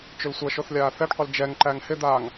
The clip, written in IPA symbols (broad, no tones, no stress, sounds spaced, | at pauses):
t͡ʃ ʏ l sʷ ɐ ʃ o θ lʲ aː θ ɛ ɖ qʷ ɪ l d͡ʒ ɛ ŋ ǃ æ ŋ h ɪ d̪ aː ŋ